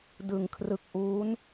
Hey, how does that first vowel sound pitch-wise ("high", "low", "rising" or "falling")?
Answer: low